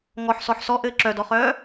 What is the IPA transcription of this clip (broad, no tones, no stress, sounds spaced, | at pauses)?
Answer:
ŋ ɔ ħ s ɔ ħ s ɔ ʔ ɘː ǁ œ d ɔ χ œː